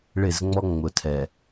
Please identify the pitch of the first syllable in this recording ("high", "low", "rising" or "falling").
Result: falling